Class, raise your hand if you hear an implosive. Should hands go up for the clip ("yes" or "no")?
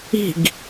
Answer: no